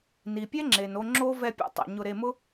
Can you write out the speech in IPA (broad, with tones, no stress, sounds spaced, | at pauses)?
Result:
n i˨ pʲ ɛ˦ ŋ͡ǁ e˨ n o˧ ŋ͡ǁ o˦ v ɛ˧ pʲ ɔ̰˧ tˤ a̰˨ ɲ ʊ˧ ɾ e˧ m ʊ˦